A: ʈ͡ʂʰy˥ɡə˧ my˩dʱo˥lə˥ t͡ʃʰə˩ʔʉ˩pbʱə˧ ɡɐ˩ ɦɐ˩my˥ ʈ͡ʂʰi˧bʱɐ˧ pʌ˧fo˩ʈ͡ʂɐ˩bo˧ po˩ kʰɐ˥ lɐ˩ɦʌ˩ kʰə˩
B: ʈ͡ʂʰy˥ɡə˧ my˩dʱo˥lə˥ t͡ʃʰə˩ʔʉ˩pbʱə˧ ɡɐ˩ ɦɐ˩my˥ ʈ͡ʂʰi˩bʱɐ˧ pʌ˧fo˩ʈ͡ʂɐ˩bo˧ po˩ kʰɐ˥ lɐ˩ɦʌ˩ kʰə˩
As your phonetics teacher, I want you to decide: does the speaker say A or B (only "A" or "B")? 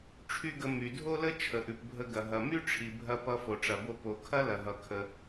B